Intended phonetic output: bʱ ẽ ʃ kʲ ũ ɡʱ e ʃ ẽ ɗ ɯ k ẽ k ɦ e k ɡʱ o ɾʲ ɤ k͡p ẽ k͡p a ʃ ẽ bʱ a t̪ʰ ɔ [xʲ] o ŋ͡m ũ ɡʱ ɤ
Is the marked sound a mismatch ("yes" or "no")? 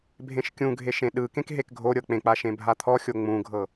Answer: no